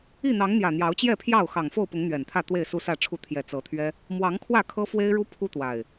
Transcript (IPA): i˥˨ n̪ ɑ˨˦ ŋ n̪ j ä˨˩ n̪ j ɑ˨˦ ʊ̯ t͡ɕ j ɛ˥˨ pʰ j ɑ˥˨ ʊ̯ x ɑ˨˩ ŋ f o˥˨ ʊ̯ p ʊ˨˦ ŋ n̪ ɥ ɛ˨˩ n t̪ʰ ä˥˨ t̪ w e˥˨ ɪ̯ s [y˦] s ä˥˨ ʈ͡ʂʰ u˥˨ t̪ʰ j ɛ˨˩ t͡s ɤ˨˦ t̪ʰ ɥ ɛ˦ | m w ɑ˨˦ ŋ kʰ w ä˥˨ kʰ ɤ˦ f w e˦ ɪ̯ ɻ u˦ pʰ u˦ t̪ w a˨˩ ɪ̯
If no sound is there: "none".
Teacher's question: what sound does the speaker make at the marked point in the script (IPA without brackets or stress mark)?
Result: u˦